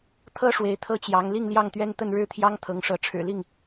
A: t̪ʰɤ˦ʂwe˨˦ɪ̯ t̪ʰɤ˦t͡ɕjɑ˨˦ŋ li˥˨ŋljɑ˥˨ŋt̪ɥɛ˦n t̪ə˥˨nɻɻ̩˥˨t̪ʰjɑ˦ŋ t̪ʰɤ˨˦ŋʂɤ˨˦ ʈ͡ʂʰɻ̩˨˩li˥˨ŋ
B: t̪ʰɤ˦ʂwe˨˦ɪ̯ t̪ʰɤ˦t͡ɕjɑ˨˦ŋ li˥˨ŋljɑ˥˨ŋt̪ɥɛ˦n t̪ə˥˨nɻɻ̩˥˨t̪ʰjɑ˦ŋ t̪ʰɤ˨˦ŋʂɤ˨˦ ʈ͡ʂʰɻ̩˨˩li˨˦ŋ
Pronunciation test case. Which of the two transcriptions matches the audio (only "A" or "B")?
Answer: A